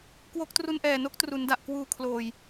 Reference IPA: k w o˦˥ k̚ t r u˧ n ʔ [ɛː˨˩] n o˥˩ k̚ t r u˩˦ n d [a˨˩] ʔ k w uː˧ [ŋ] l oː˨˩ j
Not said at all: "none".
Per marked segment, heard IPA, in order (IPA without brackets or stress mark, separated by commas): ɛː˨˩, a˨˩, kʰ